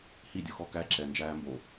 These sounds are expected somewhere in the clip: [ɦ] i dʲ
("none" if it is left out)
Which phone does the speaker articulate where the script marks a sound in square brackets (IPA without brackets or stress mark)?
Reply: h